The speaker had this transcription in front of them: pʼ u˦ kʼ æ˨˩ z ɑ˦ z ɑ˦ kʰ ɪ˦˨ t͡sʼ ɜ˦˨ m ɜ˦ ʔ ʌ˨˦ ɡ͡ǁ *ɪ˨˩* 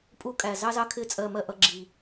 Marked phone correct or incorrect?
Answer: incorrect